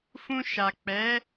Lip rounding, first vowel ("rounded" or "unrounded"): rounded